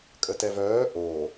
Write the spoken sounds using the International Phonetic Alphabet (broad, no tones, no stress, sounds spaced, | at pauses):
kʼ ə t ɛ v œː ʔ o